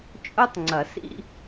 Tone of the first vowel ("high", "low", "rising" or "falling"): high